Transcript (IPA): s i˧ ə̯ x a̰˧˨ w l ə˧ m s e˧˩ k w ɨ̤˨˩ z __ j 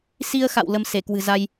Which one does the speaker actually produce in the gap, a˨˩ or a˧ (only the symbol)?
a˧